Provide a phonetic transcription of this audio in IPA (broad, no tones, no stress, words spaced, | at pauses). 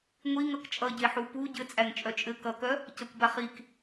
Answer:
ŋʷi ŋʌkt͡ʃʼʌɟeħu pu ɟɘt͡sʼæŋ t͡ʃʼœt͡ʃʼɘ kʌkœ | cʌkʷbaχik